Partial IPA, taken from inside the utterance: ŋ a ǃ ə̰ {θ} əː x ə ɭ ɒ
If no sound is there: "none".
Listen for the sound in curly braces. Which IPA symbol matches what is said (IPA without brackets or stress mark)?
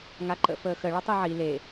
f